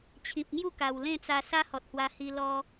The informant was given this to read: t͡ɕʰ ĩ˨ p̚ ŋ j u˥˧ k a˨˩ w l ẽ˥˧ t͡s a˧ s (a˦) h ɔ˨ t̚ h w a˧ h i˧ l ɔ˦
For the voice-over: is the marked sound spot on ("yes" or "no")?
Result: yes